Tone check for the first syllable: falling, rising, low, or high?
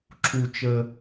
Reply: low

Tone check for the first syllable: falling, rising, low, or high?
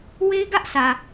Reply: high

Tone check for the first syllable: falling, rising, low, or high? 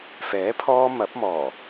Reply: rising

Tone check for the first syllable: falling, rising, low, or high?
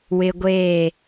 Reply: high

